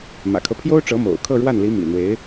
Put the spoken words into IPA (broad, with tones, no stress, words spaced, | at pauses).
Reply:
mä̰˨˩kʰɤ˦pʰjo˥ʊ̯ʈ͡ʂɤ˧˥ mo̰˨˩ʊ̯ kʰɤ˥˧ɻwa˥˩nli˧˥ mḭ˨˩n̪we˧˥ɪ̯